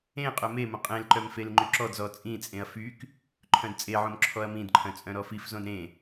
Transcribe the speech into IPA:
ẽ qʼ œ m e m õ qʼ ẽ l ǃ œ m f e l ŋ͡ǃ y ǁ ɔ d z ɔ t͡sʼ ĩ t͡sʼ ẽ ɐ̯ f y k | ǃʰ œ̃ d t͡sʼ e ʕ õ m ǁʰ ɔ ɐ̯ m ĩ d ǃʰ œ̃ t͡sʼ œ̃ ɾ ɔ f i f z õ d ɾ ẽ

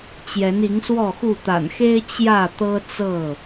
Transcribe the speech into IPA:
t͡ɕ j ɛ˨˦ n i˨˦ ŋ s w ɔ˥˨ x u˥˨ t̪ a̰˨˩ n x e˦ ɪ̯ t͡ɕ j ä˥˨ t̪ ɤ˦ t͡s ɤ˥˨

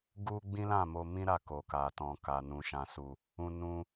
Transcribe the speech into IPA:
ɡ u˦ ɡ͡b ĩ˦ l ã˦˨ m o˧ m ĩ˦ ɾ a˦˨ k o˨ k a˨ t ɔ̃˨ k a˨ n ũ˨ ʃ ã˨ s u˨ | ũ˧ n ũ˧

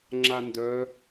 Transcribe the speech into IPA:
ŋ͡ǁ a n d œ

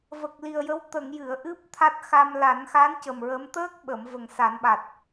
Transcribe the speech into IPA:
v ə˨˩ k̚ l i˨˩ ə̯ j ə˧˥ w t̪ ə˨˩˨ ŋ j ɨ˨˩˨ ə̯ ʔ ɨ˦˥ p̚ t̪ʰ a˦˥ t̚ x a˧ m l a˨˩˦ n x a˧˥ n c ə˨˩ m ɹ ə˧˥ m t̪ əː˦˥ k̚ ɓ ə˨˩˨ m v ə˨˩ ŋ s a˨˩˦ n ɓ a˨˩ t̚

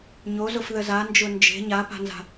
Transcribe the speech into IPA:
ɲ o z ʊ f ð ə z a n d͡ʒ ʊ n d͡ʒ e̤ ɲ a p a̤ n z a̤

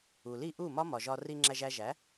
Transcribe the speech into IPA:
u˨ l i˦˨ ʔ u˦˨ m ɒ˦ m ɒ˨ ʒ ɒ˧ r i˧ ŋ͡ǁ æ˧ ʒ æ˧ ʒ æ˨˦

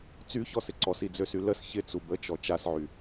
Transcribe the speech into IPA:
t͡s y ç ɔ s ɪ ǀ ɔ s i d͡z ø s y l ə s ç ɪ t͡s u b ə t͡ʃ ɔ t͡ʃ a s ʕ y

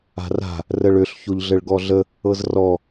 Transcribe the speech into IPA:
a̤ r a̤ | r ə ɭ ø ɬ ç o ʎ ɮ ɘ ɭ ɡ ɔ ɮ ə | ɤ z r ɔ

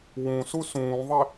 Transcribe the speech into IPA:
w ũ s u s ũː ðˤ e

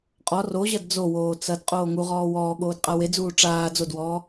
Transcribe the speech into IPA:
qʼ ɔ r o ʑ ɐ d d͡z o w oː t͡s ɐ d qʼ oː ŋ u ʁ ɔː w ɔː ɠ oː d qʼ a w e d͡z uː ʈ͡ʂ aː d͡z o d w ɔː

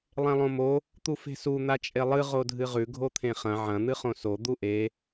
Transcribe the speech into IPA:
lˠ ẽ lˠ õ m o | t̪ u f e̤ s u n̪ a t͡ʃʼ e lˠ ɨ ʁ o dʱ ɨ ʁ ʉ ɡʱ o t̪ʰ ẽ χ ɐ̃ ʕ ɐ̃ n̪ ɨ χ õ s o d̪ u ʔ e

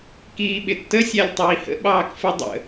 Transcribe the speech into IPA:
k iː ɓ ɪ tː ə sʲ æ lʲ tˤ iː h ə̰ ɓ ɑː k f ɪ dˤ ə̰

